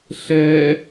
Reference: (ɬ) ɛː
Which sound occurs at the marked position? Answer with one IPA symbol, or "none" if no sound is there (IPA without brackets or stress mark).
ɬ